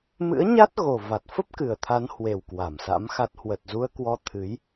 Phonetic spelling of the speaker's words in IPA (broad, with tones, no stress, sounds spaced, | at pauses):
m ɨ̰˧˥ ə̯ ɲ a˦˥ t̚ ɣ o˨˩ v a˨˩ t̚ f ə˦˥ p̚ k ɨ˨˩ ə̯ t̪ʰ a˨˦ n h w e˨˩ w k w a˧˩ m s a̰˧˥ m x a˦˥ t̚ h w ə˨˩ t̚ z u˧ ə̯ k w ɔ˧ t̪ʰ ɨ˨˦ j